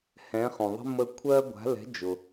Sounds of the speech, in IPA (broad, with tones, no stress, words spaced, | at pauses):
hɛ̃˨˦χũ˩ðˤə̤˥ mə˦˨kʷʰɜ˥ ɡʷa̤˨˦lɛ̤˨˦d͡ʒʊ˩